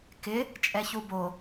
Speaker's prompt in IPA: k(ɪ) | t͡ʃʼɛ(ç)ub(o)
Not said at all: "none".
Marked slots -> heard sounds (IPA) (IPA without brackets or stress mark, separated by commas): ɪ, ç, o